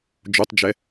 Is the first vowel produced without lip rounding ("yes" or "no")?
no